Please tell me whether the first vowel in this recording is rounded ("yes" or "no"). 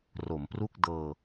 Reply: yes